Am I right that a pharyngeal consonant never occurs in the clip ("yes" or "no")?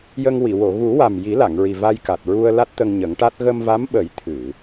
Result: yes